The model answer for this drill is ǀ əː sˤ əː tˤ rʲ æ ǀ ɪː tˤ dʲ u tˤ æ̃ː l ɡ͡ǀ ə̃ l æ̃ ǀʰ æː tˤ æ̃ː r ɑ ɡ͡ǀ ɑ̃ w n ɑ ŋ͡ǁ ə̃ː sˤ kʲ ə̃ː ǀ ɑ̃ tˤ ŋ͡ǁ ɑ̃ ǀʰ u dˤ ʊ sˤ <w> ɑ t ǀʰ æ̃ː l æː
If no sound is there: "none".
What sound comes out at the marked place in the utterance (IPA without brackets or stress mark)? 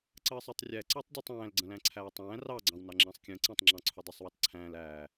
w